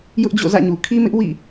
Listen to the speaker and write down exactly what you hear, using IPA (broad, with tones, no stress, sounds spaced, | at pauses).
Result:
j ʊ˦ ʔ d͡ʑ o̰˦˨ z ä̰˦˨ ɲ u˨ kʰ i˦ m ɪ˦ ʔ w ḭ˦˨